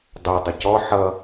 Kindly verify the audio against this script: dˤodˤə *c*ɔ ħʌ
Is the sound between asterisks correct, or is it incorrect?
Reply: correct